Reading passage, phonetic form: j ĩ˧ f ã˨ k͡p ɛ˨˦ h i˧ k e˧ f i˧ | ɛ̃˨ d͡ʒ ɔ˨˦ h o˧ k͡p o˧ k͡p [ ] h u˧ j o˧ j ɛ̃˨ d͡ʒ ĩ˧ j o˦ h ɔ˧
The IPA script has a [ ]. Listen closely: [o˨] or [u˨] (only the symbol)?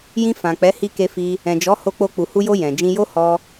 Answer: u˨